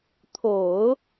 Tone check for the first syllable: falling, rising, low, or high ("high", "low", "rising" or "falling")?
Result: low